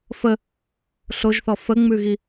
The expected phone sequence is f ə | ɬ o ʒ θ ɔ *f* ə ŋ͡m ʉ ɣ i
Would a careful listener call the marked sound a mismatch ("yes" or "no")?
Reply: no